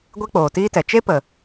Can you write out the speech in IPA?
ɡʷe˦k͡poː˨tiː˦tɛ˨ t͡ʃe˦pə˨

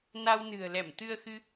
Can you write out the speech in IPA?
na˧w nɨ̤˨˩ə̯lɛ˧˩m t̪ɨ˧ə̯xɨ˧

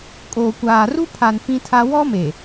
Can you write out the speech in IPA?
kʼoː˨kʷaː˨ru˦ pʰa˨n fĩ˦tʰa˦ wɔ˦me˨

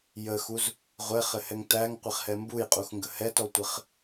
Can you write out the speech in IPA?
jəxuz | ʁʷɛχɘhɛŋ tæŋqʷɪχhɛ mbujqʼuxŋɡə hɛtɔtʷɘχ

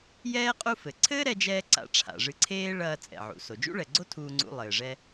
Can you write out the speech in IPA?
jɛː˥ qʼu˥fɘ˩ ǀʰɘː˥ɾɛ˧d͡ʒɛː˧ ǀa̰˧ʈ͡ʂʰa̰˩ʐɨ˧ǀʰeː˥ ɭɐː˧ t͡sʼɛ̰˩ʕṵ˩ so˩d͡ʒṵ˥ɭɛ˩ɡ͡ǀo˥ tʰuː˧ŋ͡ǀṵ˧lˠɘː˩ʐɛ˧

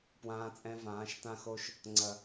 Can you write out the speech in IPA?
pwãː˧t͡sʼɛ̃˧vãː˨˦ʃ tã˧xo˧ʃ | ŋ͡ǀɐ˨

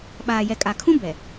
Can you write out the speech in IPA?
ɓaː˨jɛ˨kʼa˨kʰũ˦ bɛ˨

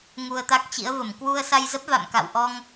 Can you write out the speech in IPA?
ŋu˧ə̯t̪a˦˥k̚t͡ɕḭ˧˥ə̯və˧˩m kwu˧ə̯sa˧jzə˦˥p̚ va̰˧˨mka̰˧˨w ʔɔ˧ŋ

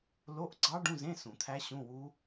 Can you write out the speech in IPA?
lo˧˥˧ʔɡ͡ǀɑ˦˥ ɖũ˧˥˧zẽ˧˥˧ sũ˨˩˦t̪ʰæ˦˥ɕũ˧˥˧ wu˦˥

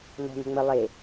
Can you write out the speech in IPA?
n̪ɔ̤n̪ə̤ ŋ͡mə lˠe

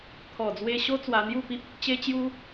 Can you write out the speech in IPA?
t̪ʰɔ˨˩d͡zwe˧ɕo˦ t͡swa˧n̪ju˥˧pi˦p̚ | t͡ɕe˦t͡ɕju˦

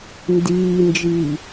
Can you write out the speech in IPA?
ndiːnd͡ʒiː

